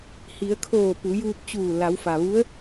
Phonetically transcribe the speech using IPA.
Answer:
h i˩˧ ə̯ kʰ oː˧˩ p u˩˧ j uː˧ p̚ t͡ɕ uː˧˩ l a˩˧ w f a˩ ʋ u˧˥ ə̯

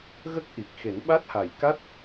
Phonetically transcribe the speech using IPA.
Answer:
ɣ ə˦˥ k̚ ʔ i˨˩ k̚ x e˨˩˦ n ɓ a˦˥ t̚ h a˨˩ j k a˦˥ t̚

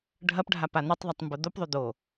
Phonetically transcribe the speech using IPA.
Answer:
ɖʱ ɐ p ɖʱ a p a n̪ ɵ tˤ ðˤ ɐ tˤ m b o d̪ o p ðˤ ɵ d̪ o

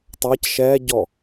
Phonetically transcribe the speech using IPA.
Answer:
tˤ a c ʃ ɛː ɟ ɔ

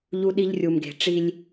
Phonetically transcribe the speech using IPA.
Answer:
ʎ u˦ ɗ i˦ ʎ rʲ u˨ m ɡ e̤˨ ʈ͡ʂ i˦ lʲ

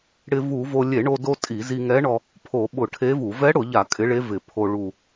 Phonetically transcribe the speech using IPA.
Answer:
ɽ ɪ˧ v u˧˩˧ v o˧ lʲ e˧˩˧ ɳ o˧ d o˧ tʼ i˧˩˧ z i˧ ŋ ɛ˧˥ ɳ ɔ˧ | pʰ o˧˩˧ ɓ ʊ˧˩˧ ʈʰ e˧˥ v u˧˩˧ v ɛ˧˥ ɽ ʊ˧˩˧ ʎ a˧˩˧ kʼ ɪ˧˥ ɭ e˧˥ v ɪ˧˩˧ pʰ o˧ ɭ u˨˩

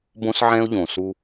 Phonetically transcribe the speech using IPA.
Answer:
b õ˦ s ʕ ɛ̃˦ ʊ̯ ʎ õ˨ s u˦

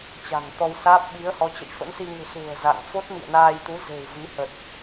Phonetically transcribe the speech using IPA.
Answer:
t͡ɕ a̤˨˩ ŋ t̪ ɔ˧ w s aː˦˥ p̚ ɓ i˨˦ ə̯ h ɔ˨˦ t͡ɕ ə̰˧˨ j f ə̰˧˥ n s i˧ ŋ ṳ˨˩ s ṳ˨˩ ə̯ z a̰˧˨ ŋ f o˦˥ t̚ m ḭ˧˨ ə̯ n aː˧ j t̪ u˨˦ z e̤˨˩ w v i˨˦ h ə˨˩ t̚

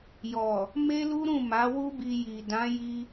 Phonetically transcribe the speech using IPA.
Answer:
j ɔ˨ | m e˦ l u˦ ɾ ũ˦˨ m a˨˦ w u˦ b i˧ j i˨ d ã˨˦ j i˧

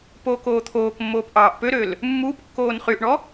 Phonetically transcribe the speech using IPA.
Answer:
p o k oː t̪ʰ oː k mː oː p ʔ ɑː ʔ p ø ɾ ø l | mː uː p kː oː n χ y ʔ ɳ ɔ

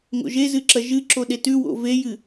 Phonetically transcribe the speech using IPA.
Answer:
ŋ o̰ ʒ e z ɨ ǁ ɐ ʒ ɨ ǁ o ɗ e t ʉ w o̰ v e j ɨ

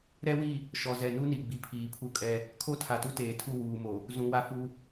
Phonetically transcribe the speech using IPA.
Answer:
ɾ ɛ˦ w i˦˨ | ʃ ɔ˨ z ɛ˨ n u˦ n i˨ ɡ͡b i˨ pʰ iː˨ pʰ u˦ kʼ ɛ˦ | kʰ o˦ tʰ a˨ t u˦ t eː˨ tʰ u˦˨ w uː˨ m o˨ | z ũ˨ w a˦ f u˦

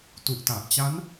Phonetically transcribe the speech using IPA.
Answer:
t u˨˩ ʔ t a˨˩ ʔ t͡ɕ a˦˥ n

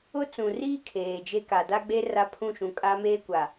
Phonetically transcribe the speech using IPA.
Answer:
ʊ˦ t͡s ũ˨ r iː˦ kʰ eː˨ d͡ʒ e˦ k a˨ d a˦ ɡ͡b e˦ r a˦ pʰ ũ˦˨ ʃ ũ˨ kʼ a˦ m eː˦ kʷ a˨

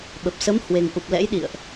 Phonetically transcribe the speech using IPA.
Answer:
ɓ ə˨˩ p̚ s ə˨˦ m h w e˨˩ ŋ ʔ u˨˩ p̚ l ɛ̰˧˥ j ɗ ḭ˧˨ ə̯ ʔ

